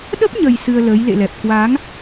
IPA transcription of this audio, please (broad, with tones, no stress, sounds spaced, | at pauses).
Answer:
ɗ ə˦˥ p̚ ɲ ə˨˩ j s ɨ˧ ə̯ l əː˨˦ j l ḛ˧˨ l ɛ˨˩ p̚ k w a˨˦ ŋ